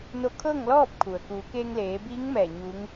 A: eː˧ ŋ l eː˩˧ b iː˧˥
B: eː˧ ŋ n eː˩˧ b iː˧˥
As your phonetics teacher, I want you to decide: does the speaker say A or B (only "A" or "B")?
A